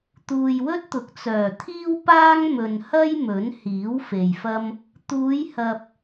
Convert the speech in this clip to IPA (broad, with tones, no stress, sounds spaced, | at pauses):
t̪ uː˨ j w ɵ˥ t̚ t̪ ʊ˨˥ k̚ t͡s œː˨˩ t̪ʰ iː˥ w p aː˥ ŋ m ɵ˨ n h ɐ˥ j m ɵ˨˥ n h iː˨˥ w f e˨ j f ɐ˥ m | t̪ uː˨˧ j h ɐ˨ p̚